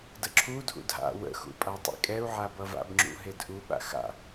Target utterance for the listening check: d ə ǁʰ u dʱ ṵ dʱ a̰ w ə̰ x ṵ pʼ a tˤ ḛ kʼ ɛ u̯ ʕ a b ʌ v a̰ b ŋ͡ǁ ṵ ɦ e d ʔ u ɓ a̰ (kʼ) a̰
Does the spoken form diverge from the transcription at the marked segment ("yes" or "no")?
yes